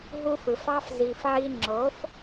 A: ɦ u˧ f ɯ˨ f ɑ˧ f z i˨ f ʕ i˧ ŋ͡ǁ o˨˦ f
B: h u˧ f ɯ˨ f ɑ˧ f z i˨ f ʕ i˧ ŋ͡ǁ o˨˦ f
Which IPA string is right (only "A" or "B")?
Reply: A